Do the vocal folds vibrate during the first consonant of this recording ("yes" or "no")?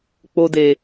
no